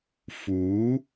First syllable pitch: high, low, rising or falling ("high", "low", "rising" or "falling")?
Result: rising